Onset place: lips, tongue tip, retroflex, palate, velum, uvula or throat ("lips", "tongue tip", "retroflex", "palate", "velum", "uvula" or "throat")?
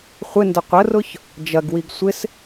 uvula